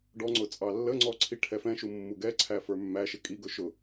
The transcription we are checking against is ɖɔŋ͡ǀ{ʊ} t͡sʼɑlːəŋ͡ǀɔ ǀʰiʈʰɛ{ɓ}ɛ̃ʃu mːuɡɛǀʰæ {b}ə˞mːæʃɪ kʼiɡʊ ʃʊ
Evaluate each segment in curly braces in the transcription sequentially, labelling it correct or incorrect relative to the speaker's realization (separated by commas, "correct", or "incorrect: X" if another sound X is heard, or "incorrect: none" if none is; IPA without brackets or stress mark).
correct, incorrect: f, incorrect: f